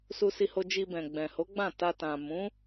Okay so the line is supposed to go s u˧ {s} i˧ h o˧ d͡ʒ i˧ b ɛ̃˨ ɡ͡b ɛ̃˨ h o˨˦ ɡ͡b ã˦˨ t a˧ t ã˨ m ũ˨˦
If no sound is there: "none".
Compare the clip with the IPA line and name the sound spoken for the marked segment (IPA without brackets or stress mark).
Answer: s